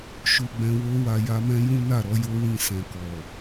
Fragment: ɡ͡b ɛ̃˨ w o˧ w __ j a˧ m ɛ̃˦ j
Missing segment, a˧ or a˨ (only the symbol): a˨